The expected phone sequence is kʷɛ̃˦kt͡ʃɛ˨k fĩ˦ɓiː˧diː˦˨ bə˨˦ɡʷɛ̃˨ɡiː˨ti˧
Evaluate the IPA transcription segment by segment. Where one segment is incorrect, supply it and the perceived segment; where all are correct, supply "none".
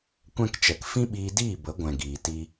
none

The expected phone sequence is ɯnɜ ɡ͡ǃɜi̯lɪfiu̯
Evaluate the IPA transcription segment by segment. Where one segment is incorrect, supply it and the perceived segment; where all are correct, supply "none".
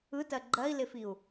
n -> t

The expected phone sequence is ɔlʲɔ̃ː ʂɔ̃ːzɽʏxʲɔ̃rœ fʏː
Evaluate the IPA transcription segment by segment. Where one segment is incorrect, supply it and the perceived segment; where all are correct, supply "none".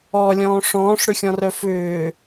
z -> ʂ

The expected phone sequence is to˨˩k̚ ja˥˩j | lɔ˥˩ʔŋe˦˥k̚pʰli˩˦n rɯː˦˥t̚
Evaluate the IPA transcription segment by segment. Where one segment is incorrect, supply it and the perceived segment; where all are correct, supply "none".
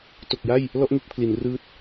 none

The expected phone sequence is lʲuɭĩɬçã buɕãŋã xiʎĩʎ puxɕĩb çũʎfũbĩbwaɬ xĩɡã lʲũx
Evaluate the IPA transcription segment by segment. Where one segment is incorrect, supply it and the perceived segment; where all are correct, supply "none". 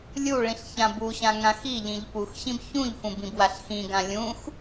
none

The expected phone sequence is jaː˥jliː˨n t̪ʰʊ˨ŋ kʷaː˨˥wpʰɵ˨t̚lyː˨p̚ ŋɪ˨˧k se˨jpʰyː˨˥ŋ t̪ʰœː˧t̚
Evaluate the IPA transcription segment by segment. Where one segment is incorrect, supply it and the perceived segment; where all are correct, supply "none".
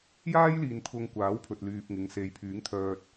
k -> ŋ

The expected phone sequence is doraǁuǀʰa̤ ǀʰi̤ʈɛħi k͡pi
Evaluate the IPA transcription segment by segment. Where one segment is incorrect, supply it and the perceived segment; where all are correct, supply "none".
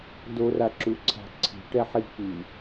none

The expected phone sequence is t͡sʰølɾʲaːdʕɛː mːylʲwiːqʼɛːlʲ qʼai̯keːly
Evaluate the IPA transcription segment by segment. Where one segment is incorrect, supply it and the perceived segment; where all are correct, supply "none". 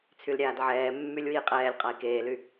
ø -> y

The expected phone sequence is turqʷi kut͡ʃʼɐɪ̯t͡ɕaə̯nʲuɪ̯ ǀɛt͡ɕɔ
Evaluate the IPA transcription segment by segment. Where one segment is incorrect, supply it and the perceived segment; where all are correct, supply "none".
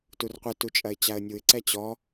k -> t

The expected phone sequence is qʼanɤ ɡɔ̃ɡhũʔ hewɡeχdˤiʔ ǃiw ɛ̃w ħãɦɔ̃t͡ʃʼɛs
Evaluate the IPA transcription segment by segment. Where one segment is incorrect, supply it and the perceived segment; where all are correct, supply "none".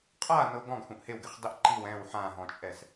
none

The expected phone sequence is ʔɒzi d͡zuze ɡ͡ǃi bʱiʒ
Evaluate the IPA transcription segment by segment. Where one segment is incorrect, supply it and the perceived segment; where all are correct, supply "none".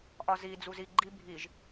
e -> i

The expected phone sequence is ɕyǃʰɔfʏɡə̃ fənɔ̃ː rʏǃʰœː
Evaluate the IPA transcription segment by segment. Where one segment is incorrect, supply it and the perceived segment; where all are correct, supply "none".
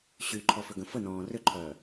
none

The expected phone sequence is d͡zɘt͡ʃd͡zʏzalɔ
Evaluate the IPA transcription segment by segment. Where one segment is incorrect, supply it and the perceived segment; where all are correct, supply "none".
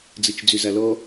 none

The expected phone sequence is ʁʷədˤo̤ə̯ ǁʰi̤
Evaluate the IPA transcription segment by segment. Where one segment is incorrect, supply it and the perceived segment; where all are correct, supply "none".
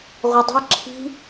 none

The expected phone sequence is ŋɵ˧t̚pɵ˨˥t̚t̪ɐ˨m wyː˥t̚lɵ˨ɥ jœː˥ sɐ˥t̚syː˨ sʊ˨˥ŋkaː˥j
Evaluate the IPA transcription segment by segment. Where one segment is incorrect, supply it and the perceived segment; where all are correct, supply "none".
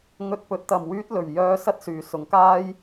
none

